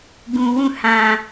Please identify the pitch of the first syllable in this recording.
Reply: low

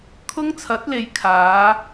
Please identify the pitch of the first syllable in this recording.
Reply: high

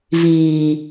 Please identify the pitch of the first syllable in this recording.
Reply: low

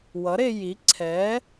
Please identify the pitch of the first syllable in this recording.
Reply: rising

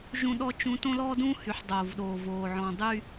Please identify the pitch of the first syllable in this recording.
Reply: high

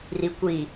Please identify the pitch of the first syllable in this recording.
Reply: low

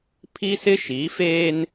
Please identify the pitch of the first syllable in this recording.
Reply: high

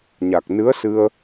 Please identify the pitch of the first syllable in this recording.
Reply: low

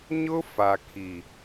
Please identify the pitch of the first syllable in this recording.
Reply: high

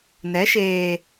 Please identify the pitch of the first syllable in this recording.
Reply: rising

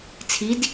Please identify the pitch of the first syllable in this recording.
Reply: rising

